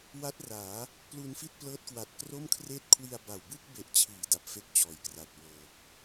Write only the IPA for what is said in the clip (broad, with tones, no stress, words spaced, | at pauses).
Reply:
wa˦˥t̚raː˩˦ | plu˧nfi˥˩t̚ plɤː˦˥t̚kwa˨˩t̚kro˥˩mkʰreː˥˩t̚ kʰwi˧a̯ba˨˩w bɯ˥˩k̚be˨˩ʔt͡ɕʰiː˩˦ da˨˩p̚fe˥˩k̚t͡ɕɔː˩˦j kra˨˩t̚wɤː˨˩k̚